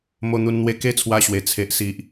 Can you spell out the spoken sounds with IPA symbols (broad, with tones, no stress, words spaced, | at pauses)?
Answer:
mo˧n̪u˧nn̪we˧ ke˦t͡sʰwa˧ɕwe˨˩ t͡sʰe˨ʔsi˨ʔ